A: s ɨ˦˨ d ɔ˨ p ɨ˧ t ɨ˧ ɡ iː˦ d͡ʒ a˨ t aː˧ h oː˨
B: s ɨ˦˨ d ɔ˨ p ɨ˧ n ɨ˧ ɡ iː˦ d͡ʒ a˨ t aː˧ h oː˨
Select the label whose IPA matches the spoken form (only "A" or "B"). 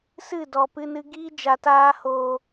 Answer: B